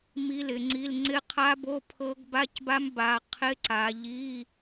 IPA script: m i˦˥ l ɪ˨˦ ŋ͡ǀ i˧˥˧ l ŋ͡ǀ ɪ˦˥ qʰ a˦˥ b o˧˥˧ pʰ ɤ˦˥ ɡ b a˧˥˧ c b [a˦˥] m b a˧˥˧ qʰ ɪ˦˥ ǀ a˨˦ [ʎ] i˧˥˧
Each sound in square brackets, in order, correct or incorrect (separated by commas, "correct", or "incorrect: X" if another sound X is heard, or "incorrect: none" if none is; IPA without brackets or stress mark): correct, correct